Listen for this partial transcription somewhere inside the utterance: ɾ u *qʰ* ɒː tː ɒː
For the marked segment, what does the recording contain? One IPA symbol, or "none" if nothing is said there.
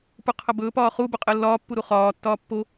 χ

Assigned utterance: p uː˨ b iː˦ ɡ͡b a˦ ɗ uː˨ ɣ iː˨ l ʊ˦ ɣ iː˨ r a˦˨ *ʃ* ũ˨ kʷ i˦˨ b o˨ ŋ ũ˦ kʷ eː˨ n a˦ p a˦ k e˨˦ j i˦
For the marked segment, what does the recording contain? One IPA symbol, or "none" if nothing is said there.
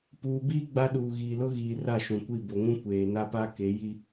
ʃ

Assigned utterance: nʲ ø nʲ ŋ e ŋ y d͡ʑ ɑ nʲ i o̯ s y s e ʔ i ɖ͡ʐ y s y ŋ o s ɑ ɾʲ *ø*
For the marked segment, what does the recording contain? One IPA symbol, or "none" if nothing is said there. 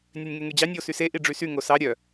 œ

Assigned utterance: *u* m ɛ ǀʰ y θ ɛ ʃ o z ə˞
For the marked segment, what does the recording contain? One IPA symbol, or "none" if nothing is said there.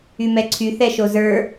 y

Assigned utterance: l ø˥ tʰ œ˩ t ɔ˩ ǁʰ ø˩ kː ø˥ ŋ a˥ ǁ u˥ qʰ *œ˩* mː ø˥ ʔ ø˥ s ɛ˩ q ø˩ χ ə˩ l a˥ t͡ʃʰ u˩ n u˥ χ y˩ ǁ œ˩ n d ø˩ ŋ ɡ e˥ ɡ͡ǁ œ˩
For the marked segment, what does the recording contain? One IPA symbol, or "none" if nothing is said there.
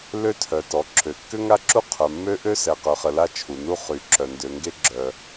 œ˩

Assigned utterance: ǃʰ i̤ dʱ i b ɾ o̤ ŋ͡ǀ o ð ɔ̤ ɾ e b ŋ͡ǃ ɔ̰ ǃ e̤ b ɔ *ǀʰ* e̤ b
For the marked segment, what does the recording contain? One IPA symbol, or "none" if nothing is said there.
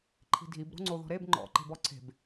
ǀʰ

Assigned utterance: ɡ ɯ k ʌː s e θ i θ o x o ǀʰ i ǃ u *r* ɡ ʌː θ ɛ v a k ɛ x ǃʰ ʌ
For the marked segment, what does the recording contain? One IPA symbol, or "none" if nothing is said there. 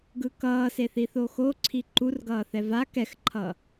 r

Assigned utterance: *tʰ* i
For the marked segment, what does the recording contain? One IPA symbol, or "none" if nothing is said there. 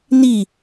n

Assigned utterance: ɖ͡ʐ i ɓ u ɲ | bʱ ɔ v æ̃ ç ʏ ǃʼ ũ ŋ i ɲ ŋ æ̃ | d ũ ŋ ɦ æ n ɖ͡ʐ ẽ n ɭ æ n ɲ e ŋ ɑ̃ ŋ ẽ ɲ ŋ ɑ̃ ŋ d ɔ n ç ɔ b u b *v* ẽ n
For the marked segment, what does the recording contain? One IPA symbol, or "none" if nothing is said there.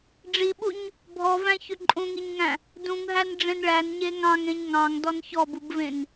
v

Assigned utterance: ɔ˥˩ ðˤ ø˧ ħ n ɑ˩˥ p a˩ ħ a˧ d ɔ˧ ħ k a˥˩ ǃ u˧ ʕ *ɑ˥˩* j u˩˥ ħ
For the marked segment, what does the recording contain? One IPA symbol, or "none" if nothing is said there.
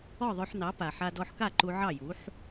ɑ˥˩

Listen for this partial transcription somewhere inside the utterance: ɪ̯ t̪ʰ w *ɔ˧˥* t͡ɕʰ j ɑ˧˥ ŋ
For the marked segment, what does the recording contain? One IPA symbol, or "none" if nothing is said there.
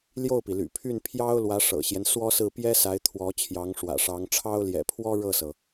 ɔ˧˥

